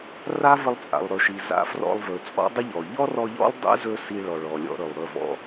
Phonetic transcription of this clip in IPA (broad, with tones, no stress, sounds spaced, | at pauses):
r a˦ v ə˧ lˠ t͡sʼ a̰˨ lˠ ɾ ɵ˨ ʃ i˨ z a̰˧ f r ɔ̰˧ lˠ v ɵ˨ t͡sʼ ɔ̰˦ dˤ ə˦ ʎ ɔ˨ ʎ ɔ˦ r ɔ˧ ʎ ɔ̰˦ lˠ dˤ ɛ̰˦ z ɵ˧ s i˧ ɭ ɔ˨ ɭ ɔ˨ lʲ ɔ̰˧ ɾ ɵ˨ lˠ ɾ ɵ˦˨ v ɔ̰˧